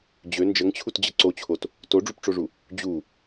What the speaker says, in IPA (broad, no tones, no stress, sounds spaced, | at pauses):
d͡ʑ ø n d͡ʒ ə ŋ t͡ɕʰ u t d͡ʑ ə ǀ o t͡ɕʰ o t | t o ɖ͡ʐ u p ʈ͡ʂ o ʐ u | d͡ʑ u